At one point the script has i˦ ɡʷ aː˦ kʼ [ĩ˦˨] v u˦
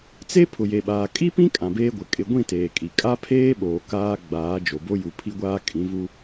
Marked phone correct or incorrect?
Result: incorrect